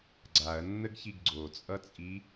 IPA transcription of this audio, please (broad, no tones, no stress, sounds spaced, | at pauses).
ɡ͡ǀ a ɐ̯ nː ə ɡ ç i ɡ ɡ͡ǀ o t͡sʼ ʌ t͡sʼ i